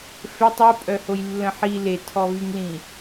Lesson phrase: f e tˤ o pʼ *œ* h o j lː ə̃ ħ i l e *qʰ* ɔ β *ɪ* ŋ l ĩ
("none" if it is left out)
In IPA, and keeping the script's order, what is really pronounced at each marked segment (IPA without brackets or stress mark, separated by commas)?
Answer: œ, tʰ, y